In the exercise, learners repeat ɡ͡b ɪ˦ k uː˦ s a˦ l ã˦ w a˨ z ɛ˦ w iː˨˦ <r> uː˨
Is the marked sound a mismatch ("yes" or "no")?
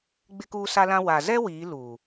yes